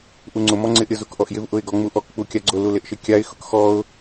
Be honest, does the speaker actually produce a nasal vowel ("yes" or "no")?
no